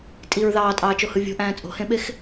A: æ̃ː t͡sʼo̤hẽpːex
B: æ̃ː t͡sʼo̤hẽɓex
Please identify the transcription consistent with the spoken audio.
B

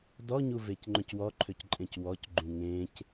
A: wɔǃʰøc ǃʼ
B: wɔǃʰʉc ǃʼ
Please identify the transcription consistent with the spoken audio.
A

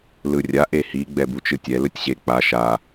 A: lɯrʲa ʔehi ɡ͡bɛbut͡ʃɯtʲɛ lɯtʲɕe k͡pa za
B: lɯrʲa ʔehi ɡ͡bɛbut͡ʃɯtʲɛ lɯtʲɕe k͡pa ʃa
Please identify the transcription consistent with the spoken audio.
B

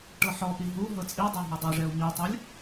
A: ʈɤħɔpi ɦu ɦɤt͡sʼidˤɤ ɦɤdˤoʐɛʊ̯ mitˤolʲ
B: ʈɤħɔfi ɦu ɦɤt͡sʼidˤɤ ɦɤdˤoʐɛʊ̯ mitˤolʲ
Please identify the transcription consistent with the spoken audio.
A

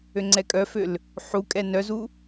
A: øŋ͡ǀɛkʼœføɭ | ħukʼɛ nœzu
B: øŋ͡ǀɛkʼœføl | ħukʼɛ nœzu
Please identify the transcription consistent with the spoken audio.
B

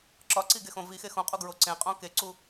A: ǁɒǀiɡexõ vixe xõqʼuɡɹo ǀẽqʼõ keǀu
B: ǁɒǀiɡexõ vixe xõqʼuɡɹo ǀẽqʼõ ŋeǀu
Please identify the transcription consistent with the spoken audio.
A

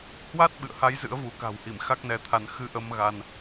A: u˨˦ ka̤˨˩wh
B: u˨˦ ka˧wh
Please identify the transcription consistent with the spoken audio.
A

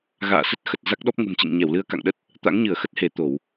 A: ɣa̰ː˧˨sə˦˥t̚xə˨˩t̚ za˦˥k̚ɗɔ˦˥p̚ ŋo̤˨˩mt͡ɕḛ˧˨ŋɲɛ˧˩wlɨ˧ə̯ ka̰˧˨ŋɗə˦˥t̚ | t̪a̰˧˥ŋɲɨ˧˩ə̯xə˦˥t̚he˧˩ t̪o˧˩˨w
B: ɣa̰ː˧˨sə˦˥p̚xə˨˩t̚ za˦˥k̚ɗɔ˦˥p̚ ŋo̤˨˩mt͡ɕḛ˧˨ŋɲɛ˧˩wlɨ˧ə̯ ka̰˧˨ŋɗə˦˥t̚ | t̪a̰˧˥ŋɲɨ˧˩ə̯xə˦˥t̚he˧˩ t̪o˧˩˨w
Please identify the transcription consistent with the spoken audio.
A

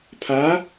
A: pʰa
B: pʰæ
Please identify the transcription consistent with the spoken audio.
A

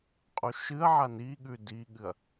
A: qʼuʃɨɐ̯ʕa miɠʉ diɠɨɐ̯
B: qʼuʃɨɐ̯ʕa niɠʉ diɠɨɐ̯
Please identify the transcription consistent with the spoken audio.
B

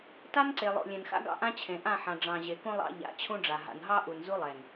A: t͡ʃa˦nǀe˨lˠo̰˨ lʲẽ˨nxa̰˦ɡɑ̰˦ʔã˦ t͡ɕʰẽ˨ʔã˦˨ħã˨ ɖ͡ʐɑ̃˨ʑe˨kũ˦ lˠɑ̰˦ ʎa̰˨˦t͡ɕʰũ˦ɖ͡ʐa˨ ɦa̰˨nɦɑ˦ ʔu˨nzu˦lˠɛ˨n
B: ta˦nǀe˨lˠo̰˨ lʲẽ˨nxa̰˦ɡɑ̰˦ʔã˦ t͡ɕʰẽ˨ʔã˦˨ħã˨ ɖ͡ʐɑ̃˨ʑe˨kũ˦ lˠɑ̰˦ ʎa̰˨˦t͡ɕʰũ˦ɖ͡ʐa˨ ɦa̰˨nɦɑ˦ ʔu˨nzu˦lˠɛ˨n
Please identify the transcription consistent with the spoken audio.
B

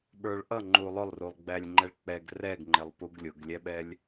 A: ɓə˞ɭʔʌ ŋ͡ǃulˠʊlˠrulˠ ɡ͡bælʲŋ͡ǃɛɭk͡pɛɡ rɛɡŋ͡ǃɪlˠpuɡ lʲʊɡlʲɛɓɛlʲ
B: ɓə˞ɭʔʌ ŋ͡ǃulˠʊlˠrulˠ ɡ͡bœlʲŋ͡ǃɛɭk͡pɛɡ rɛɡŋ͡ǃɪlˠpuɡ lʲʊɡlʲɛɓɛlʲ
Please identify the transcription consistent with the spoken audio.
A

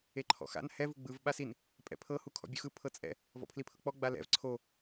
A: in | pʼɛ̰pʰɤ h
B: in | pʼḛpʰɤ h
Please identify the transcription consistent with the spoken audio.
A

